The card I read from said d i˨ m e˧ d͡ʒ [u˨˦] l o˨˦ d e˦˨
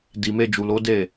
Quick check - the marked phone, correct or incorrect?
incorrect